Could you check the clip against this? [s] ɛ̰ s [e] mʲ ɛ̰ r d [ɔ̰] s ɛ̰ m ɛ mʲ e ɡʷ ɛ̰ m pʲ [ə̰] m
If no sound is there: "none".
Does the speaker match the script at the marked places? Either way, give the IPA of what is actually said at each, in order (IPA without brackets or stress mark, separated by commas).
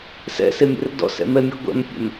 s, e, ɔ̰, ɛ̰